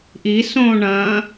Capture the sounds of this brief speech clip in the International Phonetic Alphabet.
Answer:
ʔisõː ɳɐ̃ː

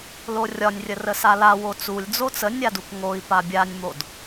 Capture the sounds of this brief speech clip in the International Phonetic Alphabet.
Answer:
lorʲɒnʲrʲə rəsala wot͡sulʲ d͡zot͡sə nʲadukŋoi̯ pabʲanʲmod

